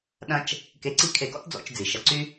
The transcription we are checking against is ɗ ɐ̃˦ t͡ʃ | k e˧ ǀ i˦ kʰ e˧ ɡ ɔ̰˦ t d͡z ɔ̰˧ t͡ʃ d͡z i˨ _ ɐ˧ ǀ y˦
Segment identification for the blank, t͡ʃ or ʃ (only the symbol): ʃ